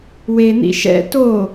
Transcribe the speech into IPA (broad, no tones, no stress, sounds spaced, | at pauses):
w e n̪ ḭ ʃ ɛ̰ t o